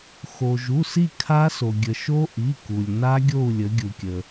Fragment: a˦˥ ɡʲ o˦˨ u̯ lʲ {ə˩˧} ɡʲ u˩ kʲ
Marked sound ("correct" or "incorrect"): correct